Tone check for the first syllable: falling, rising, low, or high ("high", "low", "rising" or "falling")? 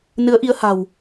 rising